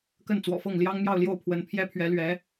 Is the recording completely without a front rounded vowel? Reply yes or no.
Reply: yes